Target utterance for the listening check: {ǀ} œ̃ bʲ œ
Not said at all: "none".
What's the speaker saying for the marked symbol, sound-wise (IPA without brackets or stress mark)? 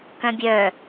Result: k